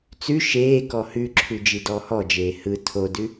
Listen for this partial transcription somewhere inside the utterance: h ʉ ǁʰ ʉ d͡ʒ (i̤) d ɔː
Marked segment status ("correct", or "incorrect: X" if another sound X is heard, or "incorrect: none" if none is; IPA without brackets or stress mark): incorrect: i